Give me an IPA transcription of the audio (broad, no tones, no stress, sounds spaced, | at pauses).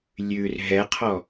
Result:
lʲ ʉ r ɦ ɛ qʰ ɔ